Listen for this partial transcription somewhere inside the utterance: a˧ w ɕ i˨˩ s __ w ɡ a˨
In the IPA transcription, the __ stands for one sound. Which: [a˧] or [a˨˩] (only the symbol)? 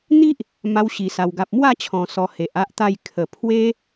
a˨˩